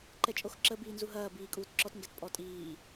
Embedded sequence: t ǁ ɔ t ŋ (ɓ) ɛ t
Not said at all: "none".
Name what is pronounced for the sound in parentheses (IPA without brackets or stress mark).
ɡ